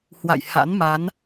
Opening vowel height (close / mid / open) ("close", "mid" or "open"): open